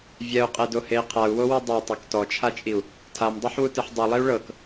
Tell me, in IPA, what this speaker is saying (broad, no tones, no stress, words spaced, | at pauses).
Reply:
vʲɛu̯qʼedohei̯ qʰau̯wowɯ dˤatˤuk tɔt͡ʃʰat͡ʃʼiu̯ | tʰamdˤeħwutɯħ dˤulˠiu̯ ɭɤk